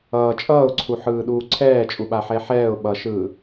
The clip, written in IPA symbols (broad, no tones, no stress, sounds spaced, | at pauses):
ʌː t͡ʃʼ ʌː ʊ̯ ǀʰ u ħ ɯː ɗ uː ǀʰ ɛː t͡ʃʼ u ɓ a ħ ɛ ħ ɛː ʊ̯ ɓ ʌ ʃ ɯː